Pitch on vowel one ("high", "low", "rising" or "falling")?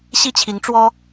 falling